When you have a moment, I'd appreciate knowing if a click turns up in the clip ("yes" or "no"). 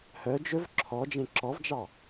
yes